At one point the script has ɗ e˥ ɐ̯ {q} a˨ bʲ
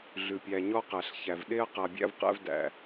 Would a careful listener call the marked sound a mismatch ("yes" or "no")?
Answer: no